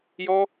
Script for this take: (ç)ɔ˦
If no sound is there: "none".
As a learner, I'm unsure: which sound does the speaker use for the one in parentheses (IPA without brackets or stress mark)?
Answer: j